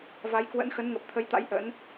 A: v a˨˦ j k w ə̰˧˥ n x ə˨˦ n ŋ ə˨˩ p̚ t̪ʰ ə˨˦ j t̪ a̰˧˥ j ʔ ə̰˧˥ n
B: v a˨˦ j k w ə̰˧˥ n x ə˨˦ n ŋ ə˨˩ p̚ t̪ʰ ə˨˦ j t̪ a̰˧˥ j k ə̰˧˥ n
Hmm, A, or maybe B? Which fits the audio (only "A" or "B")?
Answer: A